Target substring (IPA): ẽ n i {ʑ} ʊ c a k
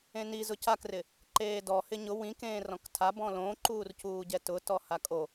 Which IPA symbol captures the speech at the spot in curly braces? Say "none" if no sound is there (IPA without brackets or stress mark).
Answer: z